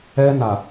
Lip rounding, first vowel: unrounded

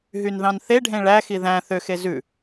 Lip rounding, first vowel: rounded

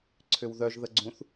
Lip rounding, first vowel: rounded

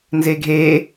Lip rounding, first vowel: unrounded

